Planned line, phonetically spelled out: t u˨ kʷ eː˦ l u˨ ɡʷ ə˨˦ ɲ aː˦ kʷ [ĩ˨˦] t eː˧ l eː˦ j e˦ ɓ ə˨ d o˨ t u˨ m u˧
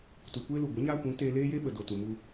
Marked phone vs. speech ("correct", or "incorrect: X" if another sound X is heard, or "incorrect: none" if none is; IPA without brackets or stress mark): correct